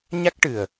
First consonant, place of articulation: palatal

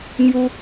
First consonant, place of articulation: velar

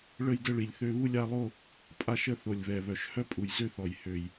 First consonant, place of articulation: retroflex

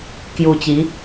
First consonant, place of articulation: velar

